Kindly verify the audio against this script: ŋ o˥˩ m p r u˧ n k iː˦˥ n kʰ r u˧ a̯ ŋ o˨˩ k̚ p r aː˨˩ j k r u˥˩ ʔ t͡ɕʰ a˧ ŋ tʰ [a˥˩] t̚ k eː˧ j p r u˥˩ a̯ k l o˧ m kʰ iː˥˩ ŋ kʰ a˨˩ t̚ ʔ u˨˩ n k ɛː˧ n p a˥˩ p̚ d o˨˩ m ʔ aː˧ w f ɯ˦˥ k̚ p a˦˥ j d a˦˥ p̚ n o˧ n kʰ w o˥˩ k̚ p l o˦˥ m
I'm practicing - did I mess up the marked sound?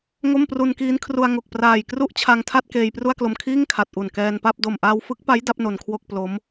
no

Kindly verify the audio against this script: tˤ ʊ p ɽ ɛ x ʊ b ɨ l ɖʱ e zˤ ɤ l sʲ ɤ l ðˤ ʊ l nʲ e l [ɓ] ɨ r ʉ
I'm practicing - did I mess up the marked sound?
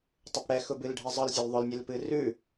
yes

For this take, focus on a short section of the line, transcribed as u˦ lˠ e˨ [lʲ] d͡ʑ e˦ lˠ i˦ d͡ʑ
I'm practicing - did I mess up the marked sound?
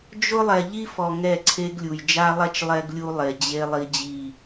yes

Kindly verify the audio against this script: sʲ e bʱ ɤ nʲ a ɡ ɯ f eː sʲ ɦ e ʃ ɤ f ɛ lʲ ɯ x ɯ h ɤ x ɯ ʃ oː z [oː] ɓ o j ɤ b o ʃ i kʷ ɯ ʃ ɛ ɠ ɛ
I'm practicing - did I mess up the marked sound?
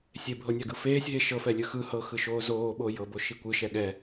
no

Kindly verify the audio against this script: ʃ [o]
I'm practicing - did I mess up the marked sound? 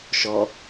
yes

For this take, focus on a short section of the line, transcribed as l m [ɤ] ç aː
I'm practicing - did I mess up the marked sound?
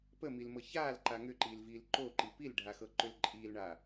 no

